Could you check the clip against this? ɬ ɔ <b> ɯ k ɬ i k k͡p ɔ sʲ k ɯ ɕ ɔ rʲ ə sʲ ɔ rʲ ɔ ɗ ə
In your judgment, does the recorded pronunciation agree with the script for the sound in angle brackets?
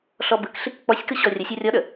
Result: yes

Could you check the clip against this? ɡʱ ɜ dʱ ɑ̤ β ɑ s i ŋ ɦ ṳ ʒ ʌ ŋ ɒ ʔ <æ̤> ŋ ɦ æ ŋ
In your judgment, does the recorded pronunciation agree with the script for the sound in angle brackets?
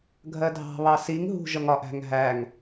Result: yes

